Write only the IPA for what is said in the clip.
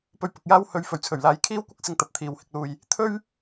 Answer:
pɵ˧ɥpʊ˨k̚jaː˥whɵ˧ɥ fɵ˨˩ɥt͡sʰɵ˨˩ɥlaː˨˥j kʰiː˥wkʷɐ˥k̚ sɪ˧ŋ t̪ɐ˧p̚t̪ʰiː˨whɪ˧k̚luː˧j | t̪ʰɵ˥ɥ

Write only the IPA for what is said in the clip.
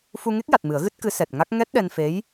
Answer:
fu˧ŋe˦˥k̚ja˨˩t̚ mɨ˨˩˦ə̯ɣɨ˦˥t̚kɨ˧˥ sɛ˨˩t̚ŋa˦˥k̚ ŋɛ˦˥t̚ɗɛ˧nfe˧˥j

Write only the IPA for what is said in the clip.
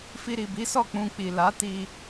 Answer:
fi˧ɾi˨bi˨˦sɔ˦˨ k͡pũ˧k͡pi˨ la˨˦ti˧

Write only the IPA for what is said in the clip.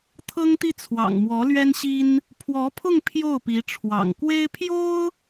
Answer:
t̪ʰɤ˥ŋt̪i˥˩t͡sʰwɑ̰˨˩ŋ mwɔ˧˥lɥɛ˥nɕi˥n | pʰwɔ˧˥pʰʊ˥˧ŋ pʰjo˥˩ʊ̯pi˧˥ʈ͡ʂʰwɑ̰˨˩ŋ kwe˥ɪ̯pʰjo˥ʊ̯

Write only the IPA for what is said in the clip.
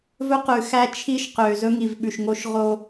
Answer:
vɵ˦qʉ˨ xæ˦t͡ʃʰi˦ʃqø˨ zɵ˦ŋi˨vɓʉ˨ʃŋo˦ʃ ʁo˦

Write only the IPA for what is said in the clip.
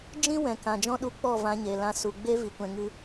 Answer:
d͡ʒĩ˦ wɛ̃˨kã˨d͡ʒɔ̃˦ ɗu˧k͡pɔ˦˨ vã˧ɲe˨lã˧ su˨ɡ͡be˦ vi˨kʷɛ̃˧ŋɨ˦

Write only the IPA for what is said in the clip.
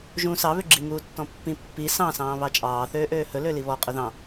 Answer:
ʒũ sɑ βøɡ͡ǁi ŋuːtːɔ̃pːĩ pːi sɑ̃ sɑ̃ːβɑt͡ʃʼɑː θøːʔøːhɵ løliβɔ qʼɵðɑ̃

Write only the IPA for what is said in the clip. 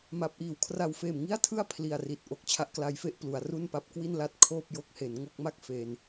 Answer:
ma˦˥p̚ʔiː˨˩w kʰra˨˩wfeː˨˩m ŋi˥˩a̯tʰɯ˥˩a̯ pʰli˨˩a̯ri˨˩t̚ʔo˥˩k̚ t͡ɕʰa˦˥ʔkla˦˥jfe˥˩ʔ plu˩˦a̯ru˥˩npa˦˥p̚ kwi˥˩nla˦˥t̚ kʰoː˥˩p̚ jo˥˩k̚he˩˦nŋo˥˩k̚ma˥˩k̚ fe˧n

